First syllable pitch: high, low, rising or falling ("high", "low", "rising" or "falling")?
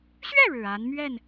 falling